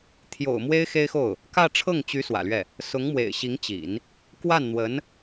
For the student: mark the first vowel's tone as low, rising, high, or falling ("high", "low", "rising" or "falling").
low